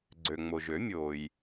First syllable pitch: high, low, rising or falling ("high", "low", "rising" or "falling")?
low